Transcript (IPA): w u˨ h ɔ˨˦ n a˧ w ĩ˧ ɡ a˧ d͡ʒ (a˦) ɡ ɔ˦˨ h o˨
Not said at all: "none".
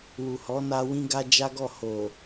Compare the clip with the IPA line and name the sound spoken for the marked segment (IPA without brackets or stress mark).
a˦